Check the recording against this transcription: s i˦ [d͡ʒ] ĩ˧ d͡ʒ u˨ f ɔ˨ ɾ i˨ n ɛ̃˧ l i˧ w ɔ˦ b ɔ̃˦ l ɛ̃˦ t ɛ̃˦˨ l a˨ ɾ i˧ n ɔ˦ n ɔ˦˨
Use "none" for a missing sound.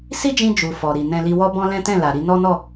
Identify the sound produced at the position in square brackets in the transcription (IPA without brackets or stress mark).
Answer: d͡ʒ